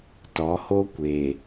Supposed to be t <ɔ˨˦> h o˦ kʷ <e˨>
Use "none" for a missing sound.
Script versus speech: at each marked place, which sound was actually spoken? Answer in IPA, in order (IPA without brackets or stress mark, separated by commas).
ɔ˨˦, e˨